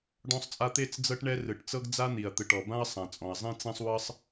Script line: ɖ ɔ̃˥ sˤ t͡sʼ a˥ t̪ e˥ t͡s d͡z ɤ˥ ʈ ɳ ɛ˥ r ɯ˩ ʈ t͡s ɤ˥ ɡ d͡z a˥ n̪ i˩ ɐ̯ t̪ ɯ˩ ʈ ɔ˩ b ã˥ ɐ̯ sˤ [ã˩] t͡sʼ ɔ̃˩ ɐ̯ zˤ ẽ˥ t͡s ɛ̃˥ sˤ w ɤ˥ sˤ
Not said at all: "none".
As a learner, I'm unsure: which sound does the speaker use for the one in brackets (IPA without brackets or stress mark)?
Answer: ã˩